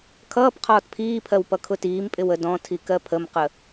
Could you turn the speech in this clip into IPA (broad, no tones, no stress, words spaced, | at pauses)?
kʰʌːp qʰɒːtpʰiːpʰɜw pʌkʰʊtiːmpʼɪw ədɔ̃tʰi kɜpʰəmqə